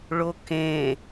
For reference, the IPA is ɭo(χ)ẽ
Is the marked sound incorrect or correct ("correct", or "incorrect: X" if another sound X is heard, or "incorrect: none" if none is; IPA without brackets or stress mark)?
incorrect: k